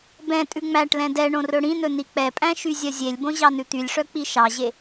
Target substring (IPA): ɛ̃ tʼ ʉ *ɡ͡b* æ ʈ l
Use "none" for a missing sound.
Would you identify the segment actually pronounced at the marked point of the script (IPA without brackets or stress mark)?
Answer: ŋ͡m